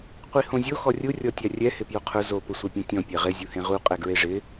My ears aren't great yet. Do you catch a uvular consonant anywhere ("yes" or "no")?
yes